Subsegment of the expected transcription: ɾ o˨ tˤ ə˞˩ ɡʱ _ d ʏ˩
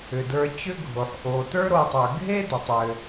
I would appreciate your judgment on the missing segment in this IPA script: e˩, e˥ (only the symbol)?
e˥